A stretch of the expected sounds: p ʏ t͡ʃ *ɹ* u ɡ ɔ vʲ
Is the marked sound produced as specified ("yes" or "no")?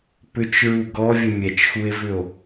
yes